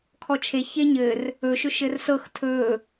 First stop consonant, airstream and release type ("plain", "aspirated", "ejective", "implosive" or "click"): aspirated